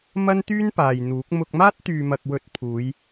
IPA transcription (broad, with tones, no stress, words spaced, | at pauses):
mɐ˥nt̪yː˥npaː˨j n̪uː˨˥k̚ mʊ˧k̚maː˥t̚t̪yː˨mɐ˨k̚ wɵ˨˥t̚ pʰuː˨˧j